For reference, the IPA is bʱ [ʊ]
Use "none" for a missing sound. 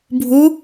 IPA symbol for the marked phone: u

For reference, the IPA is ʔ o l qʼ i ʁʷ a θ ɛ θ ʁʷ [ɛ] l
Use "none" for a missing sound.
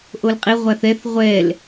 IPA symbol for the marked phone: ɛ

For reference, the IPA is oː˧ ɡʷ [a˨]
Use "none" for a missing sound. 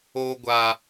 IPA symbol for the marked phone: a˨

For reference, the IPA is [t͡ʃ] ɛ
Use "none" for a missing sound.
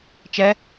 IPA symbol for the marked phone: t͡ʃ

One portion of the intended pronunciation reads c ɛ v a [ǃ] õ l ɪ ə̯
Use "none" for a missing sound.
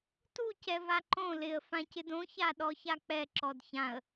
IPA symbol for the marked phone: ǃ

